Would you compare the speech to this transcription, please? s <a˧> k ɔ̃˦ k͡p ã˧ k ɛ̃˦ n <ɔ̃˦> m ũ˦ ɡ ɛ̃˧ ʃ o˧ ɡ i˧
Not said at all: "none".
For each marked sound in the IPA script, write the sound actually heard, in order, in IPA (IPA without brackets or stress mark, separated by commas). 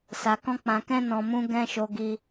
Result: a˧, ɔ̃˧